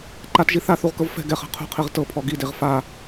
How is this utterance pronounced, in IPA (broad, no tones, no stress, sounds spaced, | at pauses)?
ǃ a t ʒ i θ a θ u ʁ k ɤ v f ɛ̤ ɡ ɛ χ ɛ̤ qʰ ṳ qʰ i ʁ t ɤ pʰ ɔ ɡ i d e ʁ f a